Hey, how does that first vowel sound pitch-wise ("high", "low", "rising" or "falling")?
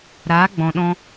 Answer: rising